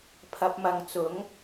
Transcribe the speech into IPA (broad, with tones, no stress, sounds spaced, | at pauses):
pʰ ɐ˧ p̚ m ɐ˨ ŋ t͡s ʊ˨˥ ŋ